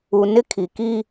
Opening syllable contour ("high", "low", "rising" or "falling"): low